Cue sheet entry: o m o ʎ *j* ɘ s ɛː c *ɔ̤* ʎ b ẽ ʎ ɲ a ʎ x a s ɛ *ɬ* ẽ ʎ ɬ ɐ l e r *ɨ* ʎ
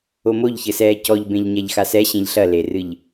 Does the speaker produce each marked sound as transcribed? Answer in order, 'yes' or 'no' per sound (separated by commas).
no, no, no, yes